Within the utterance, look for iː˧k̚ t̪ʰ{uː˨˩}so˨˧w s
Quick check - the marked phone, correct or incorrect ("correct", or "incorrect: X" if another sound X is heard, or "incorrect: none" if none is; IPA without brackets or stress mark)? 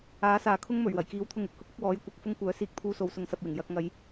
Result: incorrect: uː˧